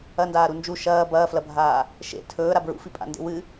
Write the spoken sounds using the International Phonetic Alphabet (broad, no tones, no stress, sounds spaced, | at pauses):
ɐ n d aː ɾ u n d͡ʒ u ʃ ɐː b ɐː f l ɐ bʱ aː | ʃ ḛ tʰ ɵː ɾ a b ɹ ṵ f i pʼ a̰ n d ḛ w ɨ